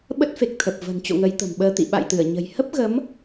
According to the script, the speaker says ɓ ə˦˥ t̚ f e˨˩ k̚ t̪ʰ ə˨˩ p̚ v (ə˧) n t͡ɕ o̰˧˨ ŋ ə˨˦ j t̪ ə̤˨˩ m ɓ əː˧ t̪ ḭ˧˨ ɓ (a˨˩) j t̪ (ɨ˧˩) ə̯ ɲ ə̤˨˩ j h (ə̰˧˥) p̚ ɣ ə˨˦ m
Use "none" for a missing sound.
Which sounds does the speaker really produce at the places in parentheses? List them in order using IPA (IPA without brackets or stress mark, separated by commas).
ə̤˨˩, a̰˧˨, ɨ˧˩, ə˦˥